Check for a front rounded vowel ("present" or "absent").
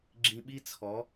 absent